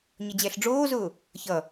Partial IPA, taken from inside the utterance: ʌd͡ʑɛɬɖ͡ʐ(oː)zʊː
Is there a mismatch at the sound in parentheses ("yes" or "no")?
no